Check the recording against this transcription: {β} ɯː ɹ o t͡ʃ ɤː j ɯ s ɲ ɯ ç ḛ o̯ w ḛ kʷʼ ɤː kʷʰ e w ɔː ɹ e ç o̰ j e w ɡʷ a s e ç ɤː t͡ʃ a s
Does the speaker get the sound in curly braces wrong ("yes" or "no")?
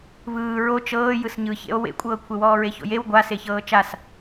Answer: no